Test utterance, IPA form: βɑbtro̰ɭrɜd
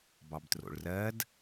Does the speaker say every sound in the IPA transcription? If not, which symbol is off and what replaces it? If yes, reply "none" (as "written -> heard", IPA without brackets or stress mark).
β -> b